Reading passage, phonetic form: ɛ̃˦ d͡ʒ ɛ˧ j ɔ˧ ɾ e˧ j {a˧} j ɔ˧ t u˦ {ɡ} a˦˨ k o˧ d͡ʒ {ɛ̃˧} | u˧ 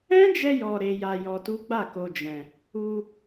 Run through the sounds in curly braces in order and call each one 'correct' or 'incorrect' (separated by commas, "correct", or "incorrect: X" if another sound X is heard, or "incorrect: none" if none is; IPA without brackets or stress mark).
correct, incorrect: ɡ͡b, correct